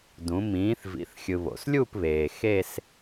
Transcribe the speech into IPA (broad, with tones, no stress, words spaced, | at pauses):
dũ˩˧ mĩː˨˥θ vḭ˩˧θxʲɯ˩ βo̰˩slʲu˥˧pβeː˩ xe˥˧s